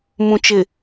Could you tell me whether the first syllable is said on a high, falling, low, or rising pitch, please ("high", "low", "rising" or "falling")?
low